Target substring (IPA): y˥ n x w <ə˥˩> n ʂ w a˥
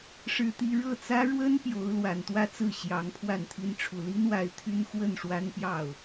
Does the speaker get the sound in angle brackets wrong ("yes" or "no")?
no